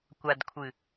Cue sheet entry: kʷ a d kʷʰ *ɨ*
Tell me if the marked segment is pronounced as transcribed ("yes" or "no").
yes